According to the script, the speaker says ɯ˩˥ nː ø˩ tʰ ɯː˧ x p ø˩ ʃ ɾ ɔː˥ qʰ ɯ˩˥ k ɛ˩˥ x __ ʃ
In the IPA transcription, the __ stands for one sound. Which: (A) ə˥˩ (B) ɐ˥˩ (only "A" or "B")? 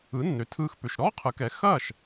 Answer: B